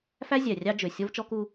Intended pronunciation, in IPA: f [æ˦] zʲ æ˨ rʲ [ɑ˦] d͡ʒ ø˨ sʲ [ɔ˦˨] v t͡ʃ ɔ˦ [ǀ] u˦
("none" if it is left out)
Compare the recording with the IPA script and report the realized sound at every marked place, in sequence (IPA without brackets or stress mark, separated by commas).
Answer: æ˦, ɑ˦, ɔ˦, k